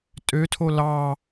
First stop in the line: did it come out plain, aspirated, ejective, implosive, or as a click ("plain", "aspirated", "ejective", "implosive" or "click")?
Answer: ejective